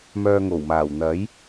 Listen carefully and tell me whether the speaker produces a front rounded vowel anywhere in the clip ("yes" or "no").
yes